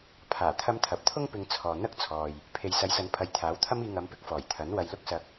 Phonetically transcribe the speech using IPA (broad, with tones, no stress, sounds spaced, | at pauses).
pʰ aː˨˩ t̪ʰ ɐ˧ m t̪ʰ ɐ˨ p̚ t̪ʰ ʊ˥ ŋ p ɪ˧ ŋ t͡sʰ ɔː˨ n̪ ɐ˥ k̚ t͡sʰ ɔː˨ j | pʰ e˨ j s ɐ˨˧ j s ɐ˨˧ n pʰ ɐ˨ j t̪ʰ aː˨˥ w t̪ʰ ɐ˥ m iː˧ ŋ ɐ˨˧ m p ɪ˧ k̚ f ɔː˨˩ j t̪ʰ ɐ˨˥ n w ɐ˨ j l ʊ˧ k̚ s ɐ˨ k̚